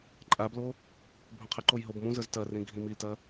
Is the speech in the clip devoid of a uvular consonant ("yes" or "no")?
no